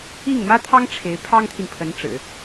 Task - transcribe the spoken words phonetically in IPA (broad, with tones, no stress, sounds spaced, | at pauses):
i˥˩ ŋ m ä˥ t̪ʰ ɑ˥ ŋ ʈ͡ʂʰ e˧˥ ɪ̯ pʰ ɑ˥ ŋ t̪ʰ i˨ n pʰ ə˧˥ n ʈ͡ʂ ɻ̩˨˩˦